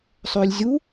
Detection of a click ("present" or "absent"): absent